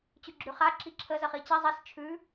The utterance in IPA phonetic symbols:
t͡ɕʉɡ͡ǁʉχa ǁiǁʰə zəχit͡ɕi zˤis t͡ʃʰʉ

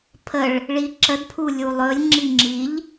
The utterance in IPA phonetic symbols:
pʰəɭ | ɭiǁədpʰu lʲulˠɵlʲŋ͡ǁi ŋ͡ǁiʎ

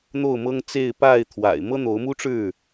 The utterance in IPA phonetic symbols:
n̪o˥˨ʊ̯mɤ˦ŋt͡se˥˨ɪ̯ pa˥˨ɪ̯t̪ʰwa̰˨˩ɪ̯ mɤ˦n̪o˨˦ʊ̯mu˦ʈ͡ʂɻ̩˥˨

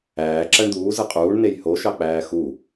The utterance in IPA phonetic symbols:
æː ǁæɳd̪uː zɯqʼuːɳ nejhoʃɑk͡pæː xu

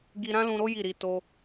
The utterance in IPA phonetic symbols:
ɡi˧ɾã˦lũ˧ɾo˦ ji˦˨ɾi˧to˦

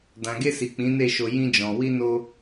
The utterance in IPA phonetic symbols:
dã˨ɡe˧si˨ k͡pĩ˨˦ne˦˨ʃo˧ jĩ˧d͡ʒɔ̃˨ wi˧no˧

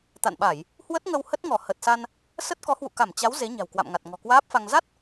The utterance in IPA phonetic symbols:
t̪a̰˧˨nɓa˧˩˨j | hwə˦˥t̚ŋə˧w hə˦˥t̚ŋɔ˧˩ hə˨˩t̚sa˧n | sə˦˥t̚ kɔ˨˦hwṵ˧˨ka˧˩m t͡ɕa˨˦w ze˨˦ɲa̤˨˩wkwa̰˧˨mŋa˨˩t̚ ŋɔ̤˨˩kwaː˦˥p̚fa˧ŋ za˦˥t̚

